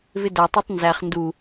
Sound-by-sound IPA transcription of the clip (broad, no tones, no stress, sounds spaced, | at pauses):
v ɪ d æ tˤ æ tˤ n z æ χ n d u